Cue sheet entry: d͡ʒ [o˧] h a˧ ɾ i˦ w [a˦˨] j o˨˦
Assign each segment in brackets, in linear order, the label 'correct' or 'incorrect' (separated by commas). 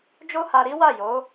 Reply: incorrect, correct